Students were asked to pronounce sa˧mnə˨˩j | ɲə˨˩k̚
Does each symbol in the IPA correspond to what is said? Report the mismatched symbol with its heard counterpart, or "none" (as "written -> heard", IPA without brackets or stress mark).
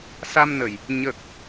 none